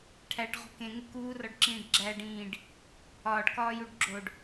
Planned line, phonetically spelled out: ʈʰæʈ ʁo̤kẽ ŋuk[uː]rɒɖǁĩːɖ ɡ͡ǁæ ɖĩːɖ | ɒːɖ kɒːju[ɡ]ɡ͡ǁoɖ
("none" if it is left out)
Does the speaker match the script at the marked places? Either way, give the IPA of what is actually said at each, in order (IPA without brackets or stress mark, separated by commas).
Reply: uː, ɖ